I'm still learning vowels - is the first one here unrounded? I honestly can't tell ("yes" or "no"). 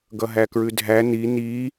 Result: yes